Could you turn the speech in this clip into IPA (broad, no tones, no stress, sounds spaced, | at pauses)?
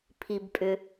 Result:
pʰ i b pʼ ʏ